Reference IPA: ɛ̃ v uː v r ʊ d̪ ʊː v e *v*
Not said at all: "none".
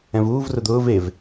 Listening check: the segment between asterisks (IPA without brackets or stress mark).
v